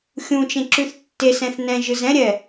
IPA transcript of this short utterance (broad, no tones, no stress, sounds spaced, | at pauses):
xʲ ũ t͡ʃ ẽ ǁ ʉ θ tː e s ɛ̃ θ n ɛ̃ ʒ ɯ z ɛ̃ ɾʲ ɛ